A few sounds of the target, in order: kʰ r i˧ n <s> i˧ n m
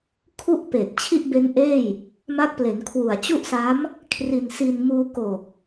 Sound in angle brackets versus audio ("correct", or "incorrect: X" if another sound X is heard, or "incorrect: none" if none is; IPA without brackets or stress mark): correct